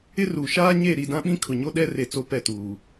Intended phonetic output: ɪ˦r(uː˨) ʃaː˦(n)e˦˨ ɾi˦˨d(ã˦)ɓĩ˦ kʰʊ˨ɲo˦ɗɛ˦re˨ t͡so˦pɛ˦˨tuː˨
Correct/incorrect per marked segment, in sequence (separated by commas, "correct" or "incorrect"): correct, incorrect, correct